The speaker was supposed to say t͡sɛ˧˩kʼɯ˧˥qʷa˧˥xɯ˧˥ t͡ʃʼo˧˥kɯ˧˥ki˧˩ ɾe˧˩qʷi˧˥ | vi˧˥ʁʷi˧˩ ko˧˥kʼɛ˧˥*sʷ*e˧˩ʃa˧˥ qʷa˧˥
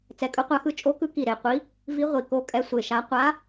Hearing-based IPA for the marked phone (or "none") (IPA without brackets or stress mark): sʷ